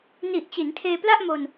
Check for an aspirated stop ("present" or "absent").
present